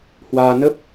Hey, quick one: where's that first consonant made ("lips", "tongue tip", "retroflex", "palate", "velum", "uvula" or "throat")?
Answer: throat